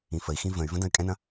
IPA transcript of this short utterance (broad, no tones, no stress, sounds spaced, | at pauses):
ĩ f ə i̯ x ĩ v ə̃ y̯ v ə̃ d ɐ̃ y̯ kʼ ɛ̃ n ɐ̃